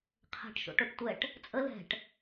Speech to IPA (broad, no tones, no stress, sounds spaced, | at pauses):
qʰ ɛ̤ ʈ ʃ o̰ ʈ o ʈ tʷ ɛ ʈ | t͡sʼ ə l ɛ̤ ʈ